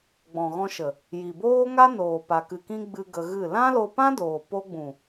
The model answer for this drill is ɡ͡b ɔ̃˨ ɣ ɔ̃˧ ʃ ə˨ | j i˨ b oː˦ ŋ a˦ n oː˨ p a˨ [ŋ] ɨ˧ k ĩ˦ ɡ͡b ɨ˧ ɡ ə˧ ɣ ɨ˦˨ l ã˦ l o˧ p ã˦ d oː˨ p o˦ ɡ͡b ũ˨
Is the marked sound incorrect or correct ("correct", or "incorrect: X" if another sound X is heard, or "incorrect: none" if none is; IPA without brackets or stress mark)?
incorrect: k